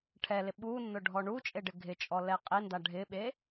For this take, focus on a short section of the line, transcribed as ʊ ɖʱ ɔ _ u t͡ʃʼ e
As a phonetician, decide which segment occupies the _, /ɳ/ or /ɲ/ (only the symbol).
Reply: ɳ